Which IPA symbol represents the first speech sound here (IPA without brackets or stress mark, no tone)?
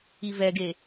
i